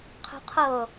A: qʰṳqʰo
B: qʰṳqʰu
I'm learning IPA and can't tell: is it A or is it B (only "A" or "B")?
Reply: A